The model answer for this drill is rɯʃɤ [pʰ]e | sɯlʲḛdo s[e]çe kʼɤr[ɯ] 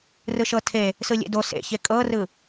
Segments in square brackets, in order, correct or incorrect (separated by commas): incorrect, incorrect, correct